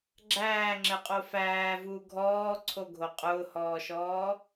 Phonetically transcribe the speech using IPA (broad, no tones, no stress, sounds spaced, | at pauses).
ɡ͡ǁ æː ŋ͡ǁ ɘ qʼ o f æː v uː ɡʱ ɔː ǀʰ o ɡʱ o qʼ ʊː h ɔː ʃ ɔː